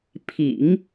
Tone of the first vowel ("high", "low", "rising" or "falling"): low